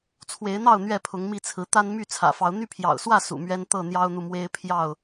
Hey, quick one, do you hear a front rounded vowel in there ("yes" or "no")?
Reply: yes